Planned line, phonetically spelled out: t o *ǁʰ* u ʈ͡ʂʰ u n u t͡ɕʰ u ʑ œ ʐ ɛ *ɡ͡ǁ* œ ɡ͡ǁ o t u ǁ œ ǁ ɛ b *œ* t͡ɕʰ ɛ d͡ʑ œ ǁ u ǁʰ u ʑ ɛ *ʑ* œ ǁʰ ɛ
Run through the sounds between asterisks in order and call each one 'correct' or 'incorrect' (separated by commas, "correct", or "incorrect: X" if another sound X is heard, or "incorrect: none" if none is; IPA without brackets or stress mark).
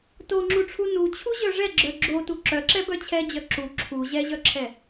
incorrect: ŋ͡ǁ, correct, correct, correct